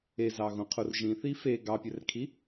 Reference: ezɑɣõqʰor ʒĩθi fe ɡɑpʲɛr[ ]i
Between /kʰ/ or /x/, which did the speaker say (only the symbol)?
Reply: kʰ